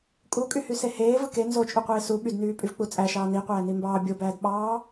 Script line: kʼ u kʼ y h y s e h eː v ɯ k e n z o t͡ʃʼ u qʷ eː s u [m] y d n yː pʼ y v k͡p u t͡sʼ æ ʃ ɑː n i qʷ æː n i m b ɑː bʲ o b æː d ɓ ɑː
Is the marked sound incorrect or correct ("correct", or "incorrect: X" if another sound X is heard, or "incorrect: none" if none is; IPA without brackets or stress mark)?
incorrect: ɓ